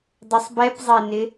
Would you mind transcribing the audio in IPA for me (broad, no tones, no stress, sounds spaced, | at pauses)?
dˤ ə sˤ b ɛ p zˤ e n ɪ